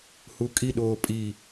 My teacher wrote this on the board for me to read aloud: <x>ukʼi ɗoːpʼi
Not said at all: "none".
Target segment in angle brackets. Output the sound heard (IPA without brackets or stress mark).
h